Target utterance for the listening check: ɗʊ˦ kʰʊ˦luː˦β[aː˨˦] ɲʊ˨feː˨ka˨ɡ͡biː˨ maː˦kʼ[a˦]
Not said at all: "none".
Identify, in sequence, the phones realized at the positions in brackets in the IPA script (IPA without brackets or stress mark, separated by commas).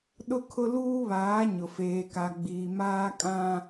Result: aː˨˦, ã˦